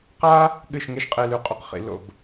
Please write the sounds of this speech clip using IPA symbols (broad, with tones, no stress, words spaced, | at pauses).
qa˦ | ɠɨ˦˨ʃŋe˦ʃqʼe˧ lʉ˨qʼu˨q χḭ˧ lo̰˦˨b